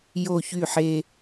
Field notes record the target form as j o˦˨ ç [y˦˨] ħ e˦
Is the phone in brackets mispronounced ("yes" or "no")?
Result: no